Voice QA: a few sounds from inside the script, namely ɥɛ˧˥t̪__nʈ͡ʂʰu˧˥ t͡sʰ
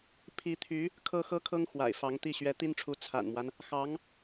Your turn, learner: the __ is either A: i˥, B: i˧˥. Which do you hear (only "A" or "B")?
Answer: A